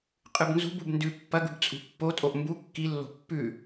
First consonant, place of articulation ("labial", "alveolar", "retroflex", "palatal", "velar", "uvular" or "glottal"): uvular